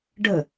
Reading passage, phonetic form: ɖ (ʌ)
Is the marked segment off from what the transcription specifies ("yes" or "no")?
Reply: yes